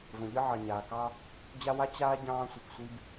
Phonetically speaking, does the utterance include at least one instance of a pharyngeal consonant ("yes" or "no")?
yes